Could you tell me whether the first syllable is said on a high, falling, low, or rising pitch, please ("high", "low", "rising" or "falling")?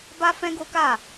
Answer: high